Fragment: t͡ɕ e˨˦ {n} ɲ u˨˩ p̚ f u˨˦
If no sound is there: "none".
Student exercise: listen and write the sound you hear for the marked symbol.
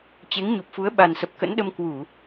ŋ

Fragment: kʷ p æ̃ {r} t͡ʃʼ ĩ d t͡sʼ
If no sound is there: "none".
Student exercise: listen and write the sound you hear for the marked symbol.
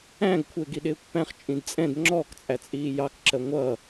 χ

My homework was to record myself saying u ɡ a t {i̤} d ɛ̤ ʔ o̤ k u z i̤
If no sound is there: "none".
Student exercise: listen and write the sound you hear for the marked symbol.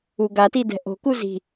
i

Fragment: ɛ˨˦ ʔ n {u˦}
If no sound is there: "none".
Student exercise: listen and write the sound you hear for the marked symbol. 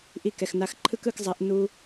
u˦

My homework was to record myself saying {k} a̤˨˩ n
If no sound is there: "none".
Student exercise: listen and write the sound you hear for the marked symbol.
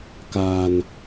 k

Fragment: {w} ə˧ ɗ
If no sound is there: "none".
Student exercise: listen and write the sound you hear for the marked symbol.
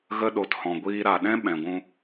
ɣ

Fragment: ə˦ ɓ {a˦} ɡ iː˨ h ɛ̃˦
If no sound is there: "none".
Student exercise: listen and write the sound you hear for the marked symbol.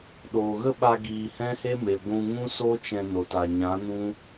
a˧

